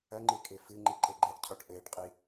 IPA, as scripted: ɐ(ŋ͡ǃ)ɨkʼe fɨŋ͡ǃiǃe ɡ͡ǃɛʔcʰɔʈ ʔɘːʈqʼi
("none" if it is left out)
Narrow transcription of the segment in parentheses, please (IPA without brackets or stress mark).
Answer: ŋ͡ǃ